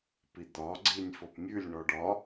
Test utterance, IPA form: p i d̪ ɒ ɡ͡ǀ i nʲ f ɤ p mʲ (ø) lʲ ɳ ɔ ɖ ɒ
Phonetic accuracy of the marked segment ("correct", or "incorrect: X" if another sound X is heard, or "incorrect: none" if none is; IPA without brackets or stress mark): incorrect: ʉ